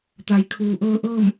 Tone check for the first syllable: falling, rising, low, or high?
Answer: low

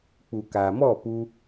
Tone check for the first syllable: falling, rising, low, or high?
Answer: low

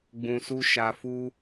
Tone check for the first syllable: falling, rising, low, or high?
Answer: low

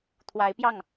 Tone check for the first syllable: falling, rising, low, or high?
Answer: rising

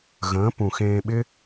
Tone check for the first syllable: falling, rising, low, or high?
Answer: rising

